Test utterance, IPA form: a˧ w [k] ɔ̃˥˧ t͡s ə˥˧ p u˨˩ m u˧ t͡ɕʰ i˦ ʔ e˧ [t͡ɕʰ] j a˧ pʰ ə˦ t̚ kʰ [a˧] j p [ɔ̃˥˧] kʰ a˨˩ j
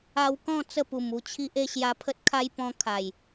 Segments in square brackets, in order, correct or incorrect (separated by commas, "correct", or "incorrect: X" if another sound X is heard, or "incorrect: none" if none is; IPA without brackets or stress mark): correct, incorrect: ɕ, incorrect: a˦, incorrect: ɔ̃˧